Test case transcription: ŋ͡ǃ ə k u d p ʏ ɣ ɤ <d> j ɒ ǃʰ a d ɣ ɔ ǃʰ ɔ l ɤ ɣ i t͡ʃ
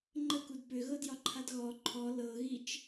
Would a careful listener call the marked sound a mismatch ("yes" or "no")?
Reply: no